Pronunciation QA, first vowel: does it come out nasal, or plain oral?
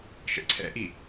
oral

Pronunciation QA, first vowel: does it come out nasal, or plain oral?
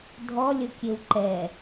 oral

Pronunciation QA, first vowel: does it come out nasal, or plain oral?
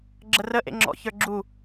oral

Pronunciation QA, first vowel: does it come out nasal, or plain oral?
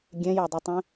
nasal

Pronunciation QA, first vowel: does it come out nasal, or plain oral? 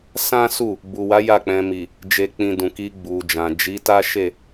nasal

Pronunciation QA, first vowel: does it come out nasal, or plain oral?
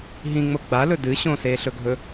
nasal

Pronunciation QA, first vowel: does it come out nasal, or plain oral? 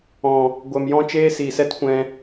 nasal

